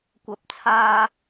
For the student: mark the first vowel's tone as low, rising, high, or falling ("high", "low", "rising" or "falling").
high